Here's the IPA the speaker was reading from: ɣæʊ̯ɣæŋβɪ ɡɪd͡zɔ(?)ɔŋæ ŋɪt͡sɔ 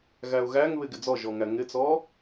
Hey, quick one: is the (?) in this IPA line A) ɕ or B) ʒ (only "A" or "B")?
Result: B